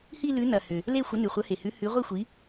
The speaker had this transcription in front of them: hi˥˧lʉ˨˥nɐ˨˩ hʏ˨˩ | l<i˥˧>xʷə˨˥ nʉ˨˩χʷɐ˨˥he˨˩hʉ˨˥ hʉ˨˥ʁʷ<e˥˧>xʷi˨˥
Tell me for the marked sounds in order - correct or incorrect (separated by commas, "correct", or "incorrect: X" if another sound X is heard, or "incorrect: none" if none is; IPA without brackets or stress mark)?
incorrect: e˥˧, incorrect: i˥˧